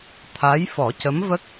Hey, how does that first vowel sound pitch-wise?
rising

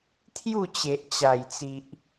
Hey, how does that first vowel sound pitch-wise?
falling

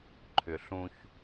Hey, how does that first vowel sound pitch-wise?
low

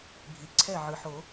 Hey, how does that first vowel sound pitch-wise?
low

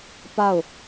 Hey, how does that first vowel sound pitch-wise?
falling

